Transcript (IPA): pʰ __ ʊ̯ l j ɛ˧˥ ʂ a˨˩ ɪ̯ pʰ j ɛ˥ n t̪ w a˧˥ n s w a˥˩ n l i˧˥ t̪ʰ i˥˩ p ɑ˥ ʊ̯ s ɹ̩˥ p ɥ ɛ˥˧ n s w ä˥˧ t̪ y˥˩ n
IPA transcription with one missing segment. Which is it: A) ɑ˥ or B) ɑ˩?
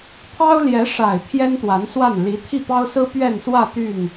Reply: A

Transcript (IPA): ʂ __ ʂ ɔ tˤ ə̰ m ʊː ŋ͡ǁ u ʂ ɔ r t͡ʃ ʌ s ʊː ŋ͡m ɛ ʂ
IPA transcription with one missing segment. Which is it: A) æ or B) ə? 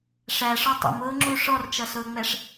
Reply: A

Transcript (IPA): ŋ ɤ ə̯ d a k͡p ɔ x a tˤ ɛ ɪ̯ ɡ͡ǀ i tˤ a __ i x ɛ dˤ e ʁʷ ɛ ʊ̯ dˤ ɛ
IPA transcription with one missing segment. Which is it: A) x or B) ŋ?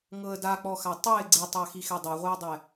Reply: A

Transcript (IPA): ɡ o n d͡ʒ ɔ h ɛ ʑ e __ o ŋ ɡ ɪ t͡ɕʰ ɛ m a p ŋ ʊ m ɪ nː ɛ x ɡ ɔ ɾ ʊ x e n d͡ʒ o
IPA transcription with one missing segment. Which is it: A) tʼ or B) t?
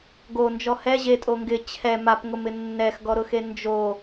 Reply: A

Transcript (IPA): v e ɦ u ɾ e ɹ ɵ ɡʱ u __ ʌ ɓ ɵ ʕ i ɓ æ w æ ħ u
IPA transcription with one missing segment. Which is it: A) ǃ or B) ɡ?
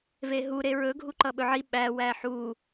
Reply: A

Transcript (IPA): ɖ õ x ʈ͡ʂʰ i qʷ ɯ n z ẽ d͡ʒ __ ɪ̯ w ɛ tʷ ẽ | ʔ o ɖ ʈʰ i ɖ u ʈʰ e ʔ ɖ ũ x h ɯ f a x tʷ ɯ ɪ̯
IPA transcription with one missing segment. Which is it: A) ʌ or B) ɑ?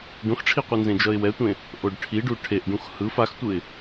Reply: A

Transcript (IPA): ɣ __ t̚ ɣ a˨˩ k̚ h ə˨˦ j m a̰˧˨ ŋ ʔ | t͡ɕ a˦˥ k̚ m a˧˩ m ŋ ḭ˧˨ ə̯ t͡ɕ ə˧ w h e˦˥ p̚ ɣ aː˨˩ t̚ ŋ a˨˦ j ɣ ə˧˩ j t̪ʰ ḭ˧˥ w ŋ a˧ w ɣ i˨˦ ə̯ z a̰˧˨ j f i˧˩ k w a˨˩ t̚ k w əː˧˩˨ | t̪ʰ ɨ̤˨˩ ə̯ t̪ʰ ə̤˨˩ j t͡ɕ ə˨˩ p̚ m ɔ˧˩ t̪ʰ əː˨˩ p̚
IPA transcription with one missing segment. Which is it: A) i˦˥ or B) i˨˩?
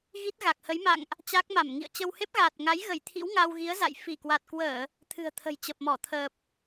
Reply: A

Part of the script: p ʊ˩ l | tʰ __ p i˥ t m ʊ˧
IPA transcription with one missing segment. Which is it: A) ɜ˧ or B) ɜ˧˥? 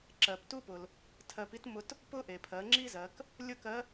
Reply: A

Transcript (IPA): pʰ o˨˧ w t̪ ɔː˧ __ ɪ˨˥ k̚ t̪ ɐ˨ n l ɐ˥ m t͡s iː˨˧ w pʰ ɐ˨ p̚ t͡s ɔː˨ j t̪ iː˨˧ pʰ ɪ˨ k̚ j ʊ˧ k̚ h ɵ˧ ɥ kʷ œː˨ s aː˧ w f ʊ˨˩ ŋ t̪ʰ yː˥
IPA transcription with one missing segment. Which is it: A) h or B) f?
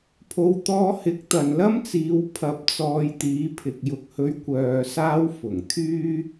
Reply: A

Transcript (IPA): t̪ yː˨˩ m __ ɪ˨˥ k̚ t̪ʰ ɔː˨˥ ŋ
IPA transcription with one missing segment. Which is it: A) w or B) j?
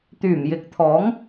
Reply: B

